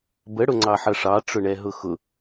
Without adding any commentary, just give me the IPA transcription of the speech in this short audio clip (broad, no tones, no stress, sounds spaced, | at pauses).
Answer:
b ə ɽ ʊ ŋ͡ǀ ɑ ħ ʌ ʂ ɑ ʈ͡ʂ ʊ ɳ ɛ ɦ ʊ x ʊ